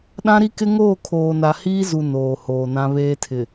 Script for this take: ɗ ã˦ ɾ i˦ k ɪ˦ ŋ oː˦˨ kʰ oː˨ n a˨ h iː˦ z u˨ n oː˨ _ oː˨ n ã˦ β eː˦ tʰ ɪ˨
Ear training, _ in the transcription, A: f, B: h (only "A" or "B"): B